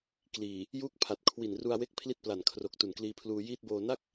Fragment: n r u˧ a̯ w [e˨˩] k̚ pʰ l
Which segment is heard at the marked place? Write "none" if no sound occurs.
e˦˥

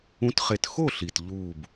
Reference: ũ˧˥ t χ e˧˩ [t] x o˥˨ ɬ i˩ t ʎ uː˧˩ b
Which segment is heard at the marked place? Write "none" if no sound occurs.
t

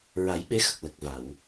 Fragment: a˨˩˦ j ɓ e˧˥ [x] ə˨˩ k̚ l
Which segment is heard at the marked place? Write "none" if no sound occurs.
x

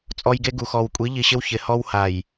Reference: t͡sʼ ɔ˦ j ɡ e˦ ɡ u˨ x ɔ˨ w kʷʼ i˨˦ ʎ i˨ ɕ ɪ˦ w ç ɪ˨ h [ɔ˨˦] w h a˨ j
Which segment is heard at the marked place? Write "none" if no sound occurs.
ɔ˦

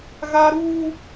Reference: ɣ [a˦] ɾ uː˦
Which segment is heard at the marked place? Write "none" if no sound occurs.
a˦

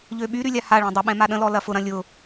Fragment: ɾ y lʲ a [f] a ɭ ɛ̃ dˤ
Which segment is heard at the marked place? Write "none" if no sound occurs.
h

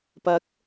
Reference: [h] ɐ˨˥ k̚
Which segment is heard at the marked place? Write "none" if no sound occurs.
p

